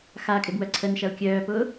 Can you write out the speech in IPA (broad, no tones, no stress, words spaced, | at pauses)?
xakʼɪbwœ ǀʰənʃɐu̯ kʲœːpʊː